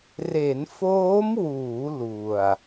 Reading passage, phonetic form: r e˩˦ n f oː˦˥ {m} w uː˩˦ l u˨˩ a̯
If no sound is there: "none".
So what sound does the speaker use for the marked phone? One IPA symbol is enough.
m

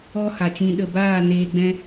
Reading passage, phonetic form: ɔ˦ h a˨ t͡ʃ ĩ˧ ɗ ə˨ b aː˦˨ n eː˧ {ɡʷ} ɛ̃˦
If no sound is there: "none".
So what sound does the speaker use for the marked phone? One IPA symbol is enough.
ɡ͡b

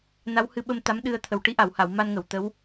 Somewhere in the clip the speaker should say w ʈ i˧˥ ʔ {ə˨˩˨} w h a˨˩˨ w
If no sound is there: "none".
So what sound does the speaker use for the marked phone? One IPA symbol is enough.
a˨˩˨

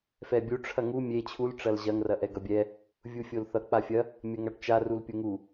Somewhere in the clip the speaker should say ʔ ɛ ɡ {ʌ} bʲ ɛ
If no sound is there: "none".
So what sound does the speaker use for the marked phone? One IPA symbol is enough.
ʌ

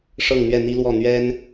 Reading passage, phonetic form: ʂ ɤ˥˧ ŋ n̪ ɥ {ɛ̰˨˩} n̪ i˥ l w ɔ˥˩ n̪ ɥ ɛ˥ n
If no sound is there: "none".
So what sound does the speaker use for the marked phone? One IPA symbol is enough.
ɛ˥˩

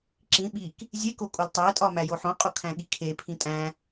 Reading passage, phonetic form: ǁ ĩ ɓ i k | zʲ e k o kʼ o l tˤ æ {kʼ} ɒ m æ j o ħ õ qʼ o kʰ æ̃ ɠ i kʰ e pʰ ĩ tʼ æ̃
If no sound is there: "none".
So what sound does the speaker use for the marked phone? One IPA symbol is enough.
tʼ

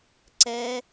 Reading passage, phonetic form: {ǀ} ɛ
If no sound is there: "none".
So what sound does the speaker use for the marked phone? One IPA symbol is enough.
ǀ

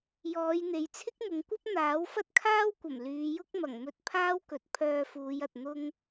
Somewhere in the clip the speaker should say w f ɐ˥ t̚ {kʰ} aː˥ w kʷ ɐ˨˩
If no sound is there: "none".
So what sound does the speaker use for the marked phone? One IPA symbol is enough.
kʰ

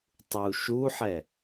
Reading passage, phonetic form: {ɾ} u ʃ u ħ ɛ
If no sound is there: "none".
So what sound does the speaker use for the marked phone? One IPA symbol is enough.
tˤ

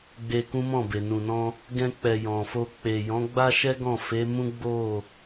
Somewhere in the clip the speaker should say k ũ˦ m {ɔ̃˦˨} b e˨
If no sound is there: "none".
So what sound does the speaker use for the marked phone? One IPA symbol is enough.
ɔ̃˦˨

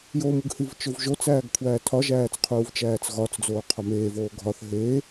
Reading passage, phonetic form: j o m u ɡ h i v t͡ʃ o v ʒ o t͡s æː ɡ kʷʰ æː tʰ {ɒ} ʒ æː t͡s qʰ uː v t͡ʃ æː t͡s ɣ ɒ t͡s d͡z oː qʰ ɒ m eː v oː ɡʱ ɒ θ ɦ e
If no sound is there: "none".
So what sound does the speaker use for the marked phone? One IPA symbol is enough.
ɒ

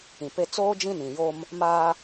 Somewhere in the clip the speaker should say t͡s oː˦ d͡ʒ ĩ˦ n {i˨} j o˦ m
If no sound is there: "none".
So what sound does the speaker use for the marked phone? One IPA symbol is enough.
ĩ˨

